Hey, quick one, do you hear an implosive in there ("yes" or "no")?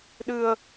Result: yes